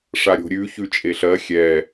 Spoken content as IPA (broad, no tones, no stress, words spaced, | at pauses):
ʂaɾʲo̤ɾʲʉ çʉt͡ʃʼeɬɜ xʲɛ